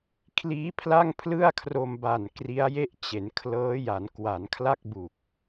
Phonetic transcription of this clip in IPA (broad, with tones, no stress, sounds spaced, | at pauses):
kʰ l iː˦˥ pʰ l a˥˩ ŋ pʰ l ɯ˥˩ a̯ kʰ r o˧ m b a˨˩ n k r i˦˥ a̯ j e˥˩ ʔ t͡ɕ e˩˦ n kʰ l ɤː˦˥ j a˩˦ n k w a˩˦ n kʰ l a˥˩ k̚ b u˨˩ k̚